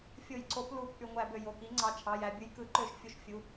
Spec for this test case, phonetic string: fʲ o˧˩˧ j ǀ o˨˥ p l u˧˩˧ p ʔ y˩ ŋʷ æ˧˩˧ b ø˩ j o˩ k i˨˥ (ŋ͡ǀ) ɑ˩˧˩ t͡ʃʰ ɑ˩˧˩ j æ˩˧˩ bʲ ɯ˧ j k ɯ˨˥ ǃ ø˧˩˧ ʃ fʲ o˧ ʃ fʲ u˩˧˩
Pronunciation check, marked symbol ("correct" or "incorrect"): correct